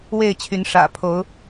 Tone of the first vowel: falling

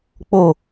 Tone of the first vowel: falling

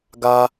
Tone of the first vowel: high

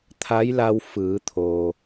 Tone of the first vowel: rising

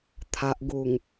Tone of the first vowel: low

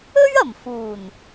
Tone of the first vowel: high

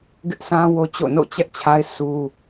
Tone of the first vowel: high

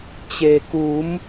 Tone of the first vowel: low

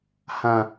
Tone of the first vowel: low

